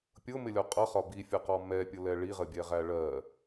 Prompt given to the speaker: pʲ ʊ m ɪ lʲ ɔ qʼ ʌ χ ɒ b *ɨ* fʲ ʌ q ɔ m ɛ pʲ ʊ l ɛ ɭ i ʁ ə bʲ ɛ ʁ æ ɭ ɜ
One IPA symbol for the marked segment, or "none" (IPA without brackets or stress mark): i